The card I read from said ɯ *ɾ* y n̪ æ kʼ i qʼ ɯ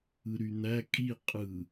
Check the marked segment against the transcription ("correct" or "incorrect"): correct